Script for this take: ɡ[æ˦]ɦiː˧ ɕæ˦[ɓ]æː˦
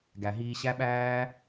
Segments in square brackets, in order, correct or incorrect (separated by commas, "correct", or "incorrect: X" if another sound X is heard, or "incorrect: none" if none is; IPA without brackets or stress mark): incorrect: æ˨, correct